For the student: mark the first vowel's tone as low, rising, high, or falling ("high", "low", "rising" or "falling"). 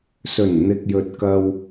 low